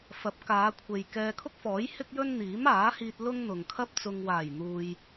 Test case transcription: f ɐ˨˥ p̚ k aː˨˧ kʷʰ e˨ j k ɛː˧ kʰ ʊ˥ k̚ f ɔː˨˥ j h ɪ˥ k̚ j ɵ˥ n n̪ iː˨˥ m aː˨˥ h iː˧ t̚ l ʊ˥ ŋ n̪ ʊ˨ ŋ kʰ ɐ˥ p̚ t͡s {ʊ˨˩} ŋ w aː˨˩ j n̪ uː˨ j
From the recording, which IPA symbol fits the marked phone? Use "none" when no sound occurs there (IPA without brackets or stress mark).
ʊ˨